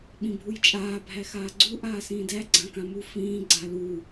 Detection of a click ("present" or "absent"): present